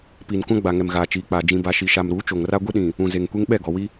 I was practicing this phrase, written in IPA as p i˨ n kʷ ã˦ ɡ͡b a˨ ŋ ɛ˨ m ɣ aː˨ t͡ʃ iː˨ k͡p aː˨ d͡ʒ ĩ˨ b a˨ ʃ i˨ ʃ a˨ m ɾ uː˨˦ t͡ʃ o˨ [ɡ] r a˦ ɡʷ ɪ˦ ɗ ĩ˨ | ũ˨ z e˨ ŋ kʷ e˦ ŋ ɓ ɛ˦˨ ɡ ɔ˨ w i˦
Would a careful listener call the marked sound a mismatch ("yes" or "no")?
yes